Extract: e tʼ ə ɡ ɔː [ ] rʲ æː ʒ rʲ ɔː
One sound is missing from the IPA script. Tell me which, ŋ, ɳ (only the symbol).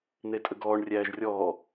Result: ɳ